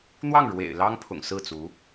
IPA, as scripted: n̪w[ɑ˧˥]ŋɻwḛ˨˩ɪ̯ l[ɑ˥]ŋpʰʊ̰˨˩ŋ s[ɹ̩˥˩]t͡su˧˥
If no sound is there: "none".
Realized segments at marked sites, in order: ɑ˥˩, ɑ˥, ɹ̩˥˩

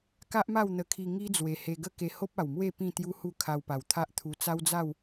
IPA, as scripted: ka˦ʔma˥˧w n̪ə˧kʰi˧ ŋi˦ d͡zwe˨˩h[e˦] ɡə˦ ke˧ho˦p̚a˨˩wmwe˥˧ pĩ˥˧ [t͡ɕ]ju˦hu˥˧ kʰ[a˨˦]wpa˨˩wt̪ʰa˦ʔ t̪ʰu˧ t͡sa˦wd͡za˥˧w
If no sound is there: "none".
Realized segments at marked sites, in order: e˧, t̪, a˧

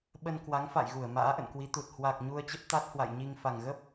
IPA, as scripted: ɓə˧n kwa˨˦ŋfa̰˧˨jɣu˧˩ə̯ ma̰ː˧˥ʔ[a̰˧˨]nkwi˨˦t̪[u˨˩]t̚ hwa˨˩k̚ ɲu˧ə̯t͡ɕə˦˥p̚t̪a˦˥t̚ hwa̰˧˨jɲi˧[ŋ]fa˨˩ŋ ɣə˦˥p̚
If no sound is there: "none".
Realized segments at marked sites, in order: ə̰˧˨, u˨˩, ŋ

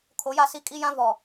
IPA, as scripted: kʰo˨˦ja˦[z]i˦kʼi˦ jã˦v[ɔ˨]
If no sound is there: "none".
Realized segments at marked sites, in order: s, ɔ˨

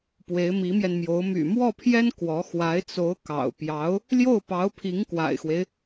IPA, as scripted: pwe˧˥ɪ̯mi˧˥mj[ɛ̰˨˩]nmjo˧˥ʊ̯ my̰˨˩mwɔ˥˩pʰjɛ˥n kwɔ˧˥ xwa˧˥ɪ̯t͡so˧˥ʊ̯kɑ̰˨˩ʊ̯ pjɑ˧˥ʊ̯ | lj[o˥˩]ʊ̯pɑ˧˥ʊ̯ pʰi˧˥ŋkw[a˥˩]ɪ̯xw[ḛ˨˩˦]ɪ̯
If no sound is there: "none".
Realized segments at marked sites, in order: ɛ˧, o˥˩, a̰˨˩, e˦

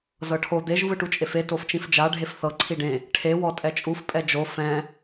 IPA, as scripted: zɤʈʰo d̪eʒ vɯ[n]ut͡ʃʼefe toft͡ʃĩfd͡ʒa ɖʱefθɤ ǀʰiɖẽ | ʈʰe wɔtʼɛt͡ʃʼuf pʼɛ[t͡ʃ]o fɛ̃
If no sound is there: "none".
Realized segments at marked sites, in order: ʈ, d͡ʒ

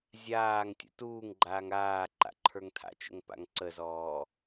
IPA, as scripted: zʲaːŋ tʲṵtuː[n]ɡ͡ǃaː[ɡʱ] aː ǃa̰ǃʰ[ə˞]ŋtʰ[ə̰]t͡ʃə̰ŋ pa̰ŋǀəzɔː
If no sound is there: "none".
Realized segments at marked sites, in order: ŋ, ŋ, ə˞, a̰

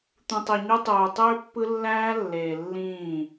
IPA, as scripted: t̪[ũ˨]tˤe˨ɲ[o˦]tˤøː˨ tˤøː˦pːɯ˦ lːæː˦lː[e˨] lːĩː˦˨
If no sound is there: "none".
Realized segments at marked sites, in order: ũ˨, o˦, eː˨

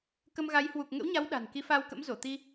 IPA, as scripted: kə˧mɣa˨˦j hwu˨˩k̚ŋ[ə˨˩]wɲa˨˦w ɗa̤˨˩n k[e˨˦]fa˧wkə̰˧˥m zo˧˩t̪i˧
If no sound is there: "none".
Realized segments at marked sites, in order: ə̰˧˥, i˨˦

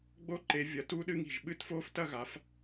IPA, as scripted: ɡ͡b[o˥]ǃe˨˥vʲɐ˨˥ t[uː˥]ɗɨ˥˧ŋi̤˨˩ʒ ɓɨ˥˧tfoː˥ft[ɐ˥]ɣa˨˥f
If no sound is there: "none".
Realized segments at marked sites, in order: o˥, uː˥, ɐ˥

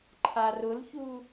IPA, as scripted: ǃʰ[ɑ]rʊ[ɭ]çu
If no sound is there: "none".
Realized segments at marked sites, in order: a, l

